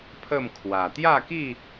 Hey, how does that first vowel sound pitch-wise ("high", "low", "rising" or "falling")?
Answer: falling